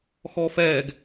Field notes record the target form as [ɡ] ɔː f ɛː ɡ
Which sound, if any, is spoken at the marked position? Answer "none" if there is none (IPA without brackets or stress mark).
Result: x